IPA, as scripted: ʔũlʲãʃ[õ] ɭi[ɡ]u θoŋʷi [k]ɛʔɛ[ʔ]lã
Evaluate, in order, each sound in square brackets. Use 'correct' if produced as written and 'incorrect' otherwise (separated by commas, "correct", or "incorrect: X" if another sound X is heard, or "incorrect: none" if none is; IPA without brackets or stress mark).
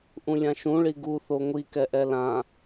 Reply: incorrect: ũ, correct, correct, incorrect: none